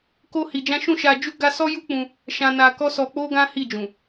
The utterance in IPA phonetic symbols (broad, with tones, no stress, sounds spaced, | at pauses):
k o˦ h i˧ d͡ʒ ã˦ ʃ ũ˦˨ ʃ a˧ d͡ʒ u˦ ɡ a˦ s ɔ˦ j u˦ k͡p ũ˧ | ʃ ã˧ n a˧ k ɔ˦ s ɔ˧ k͡p o˦ ɡ ã˦ h i˦˨ d͡ʒ ũ˨